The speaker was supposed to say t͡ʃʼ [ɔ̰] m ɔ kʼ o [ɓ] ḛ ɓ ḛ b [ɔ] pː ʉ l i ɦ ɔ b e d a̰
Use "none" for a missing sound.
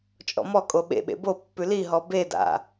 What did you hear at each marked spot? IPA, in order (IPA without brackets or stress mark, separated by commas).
ɔ̰, ɓ, o